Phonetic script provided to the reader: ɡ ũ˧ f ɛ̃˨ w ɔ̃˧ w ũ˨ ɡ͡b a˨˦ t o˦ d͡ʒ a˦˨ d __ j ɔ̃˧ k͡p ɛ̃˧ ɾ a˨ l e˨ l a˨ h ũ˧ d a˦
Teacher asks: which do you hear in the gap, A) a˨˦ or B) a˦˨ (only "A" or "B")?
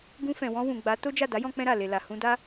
A